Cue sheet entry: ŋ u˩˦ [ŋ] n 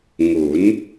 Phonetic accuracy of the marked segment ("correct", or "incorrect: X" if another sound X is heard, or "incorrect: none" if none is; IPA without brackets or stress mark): incorrect: none